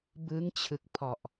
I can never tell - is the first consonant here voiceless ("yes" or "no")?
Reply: no